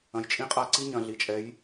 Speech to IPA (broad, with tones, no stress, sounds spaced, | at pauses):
ɐ̃˩ j t͡ʃʼ ĩ˧ qʼ a˧ ǀ i˧˥ ɲ ɐ̃˩ ɮ i˩˧ t͡ʃʼ ɛ˩˧ j